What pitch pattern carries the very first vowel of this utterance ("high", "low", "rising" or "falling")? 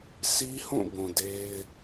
high